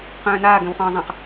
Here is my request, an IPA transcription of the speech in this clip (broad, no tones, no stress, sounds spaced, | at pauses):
q œ̃ː n aː ɡ œ̃ w χ ɔ̃ː zˤ ã q